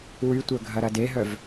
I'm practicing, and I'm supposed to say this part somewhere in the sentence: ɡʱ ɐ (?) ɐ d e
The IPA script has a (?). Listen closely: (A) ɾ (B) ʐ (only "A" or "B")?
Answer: A